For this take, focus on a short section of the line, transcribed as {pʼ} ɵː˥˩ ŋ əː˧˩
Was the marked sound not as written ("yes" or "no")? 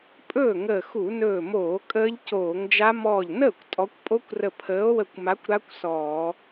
no